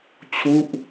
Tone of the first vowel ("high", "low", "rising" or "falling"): falling